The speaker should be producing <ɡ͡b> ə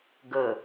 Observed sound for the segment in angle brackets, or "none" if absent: ɡ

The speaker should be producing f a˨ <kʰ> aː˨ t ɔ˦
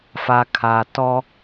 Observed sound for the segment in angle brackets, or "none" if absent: kʰ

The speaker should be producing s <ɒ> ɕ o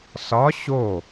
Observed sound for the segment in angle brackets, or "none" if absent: ɒ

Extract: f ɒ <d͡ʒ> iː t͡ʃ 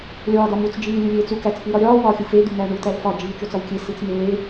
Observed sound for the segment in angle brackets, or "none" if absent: d͡ʒ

